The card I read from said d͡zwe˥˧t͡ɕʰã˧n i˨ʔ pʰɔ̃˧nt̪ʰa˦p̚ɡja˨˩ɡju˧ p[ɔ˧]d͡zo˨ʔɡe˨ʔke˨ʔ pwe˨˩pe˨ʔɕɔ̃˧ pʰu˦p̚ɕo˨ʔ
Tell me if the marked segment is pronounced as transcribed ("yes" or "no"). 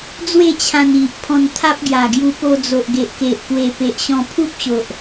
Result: no